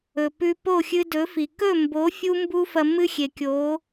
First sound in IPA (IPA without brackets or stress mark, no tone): ɵ